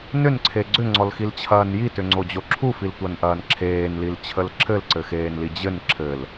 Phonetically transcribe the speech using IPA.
n ʏ n ǀʰ e ɡ͡ǀ ʏ ŋ͡ǀ ɔ l x i l t͡ɕʰ ɐː n j i t ʏ ŋ͡ǀ o d͡ʑ o ǁʰ u f i l tʷ ɐ n ʔ ɐː n ǁʰ eː n l i l t͡ɕʰ ə l ǁʰ ɘ l ǀ ɘ x eː n l i d͡ʑ ɘ n ǁʰ ɘ l

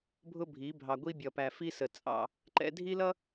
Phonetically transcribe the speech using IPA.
bʱ ʊ˦ bʱ i˨˦ bʱ ɑ˨ ɡʷ i˦ bʲ ʌ˨ p æ˨ f i˦ s ə˨ t͡sʼ ɑ̰˦˨ | ǃ ɛ̰˦ dʱ i˦ l ʌ˦

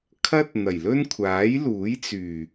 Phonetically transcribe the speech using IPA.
kʰ ɐ˥ t̚ n̪ ɐ˨˩ j l ɵ˥ n kʷʰ aː˨˥ j l uː˨˥ j t͡s yː˨˩

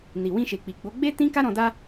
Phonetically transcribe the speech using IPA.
n i˨ w ĩ˧ ʃ e˨ k͡p i˨ ɡ͡b o˨˦ ɡ͡b e˦ t ĩ˦ k a˦ ɾ ɔ̃˧ d a˦

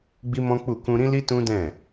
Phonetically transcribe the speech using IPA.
ɡ͡b i˦ m ɔ̃˦ k͡p u˦˨ k ũ˧ ɾ ĩ˦ l i˦ t ũ˦ d ɛ̃˦˨

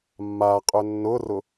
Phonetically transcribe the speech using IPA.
mː a qʼ ʏ nː ʊ r ʊ

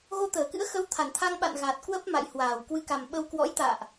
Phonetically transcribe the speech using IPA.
ɣ o˧ t̪ əː˧˩ k ɨ̰˧˥ ə̯ x ə˨˦ w t̪ʰ a˧˩ n t̪ʰ a˧ ŋ ɓ a̰˧˨ n ɣ a˨˩ t̚ k w ə˦˥ p̚ m a̰˧˨ j h w aː˧˩ w k w ɨ˧ k a˨˩ m ɓ ə˧ w k w ɔ̰˧˥ j t̪ a̰ː˧˨ ʔ

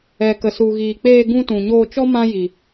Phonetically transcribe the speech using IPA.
ɛ˨ k ə˨ s u˨ ɣ iː˨ k͡p eː˧ ɡ ũ˧ t ũ˨ ɲ oː˧ t͡ʃ ɔ˦ m ã˦ j i˨

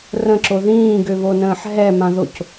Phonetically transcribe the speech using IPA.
r ə̃ ǁ o ð ĩː ɡ ø β o n ə̃ː ħ ɦ ɛ m ã ð o c

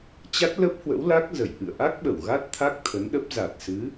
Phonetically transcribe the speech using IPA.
t͡ɕ a˦˥ t̚ l ə˦˥ p̚ h w ə̰˧˥ w l a˦˥ k̚ z ə˧˩ j ʔ ɨ̰˧˨ ə̯ ʔ a˦˥ k̚ ɓ ə˧˩ w ɣ a˦˥ t̚ t̪ʰ a˦˥ k̚ t̪ʰ ə˨˦ n ɗ ə˦˥ p̚ z a˨˩ t̚ s ɨ˨˦

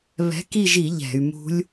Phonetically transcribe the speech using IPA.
β ɛ̤˨˥ k i˦˨ ʒ i˧˩˧ ʎ ɛ̤˧˩˧ y̯ m ṳ˦˥ lʲ

